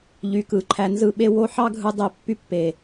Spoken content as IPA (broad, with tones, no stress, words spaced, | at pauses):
ʎy˨kɯ˨ǃʰæ˧nzɯ˦˨ ɓe˦wo˦ ħɑ˦ɡʱɯ˧ dˤe˧ pːy˦pːe˨